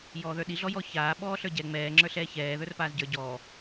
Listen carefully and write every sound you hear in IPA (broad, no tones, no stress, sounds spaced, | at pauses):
j ɔː ð ə˞ ɗ i ɮ ɔ j ɔ ç aː ɓ ɔː ɬ ə˞ ɟ ɛ ŋ͡m ɛː ŋ͡ǁ ə˞ ɬ ɛː ç ɛː ð ə˞ r p aː z ɟ ə˞ ɟ ɔː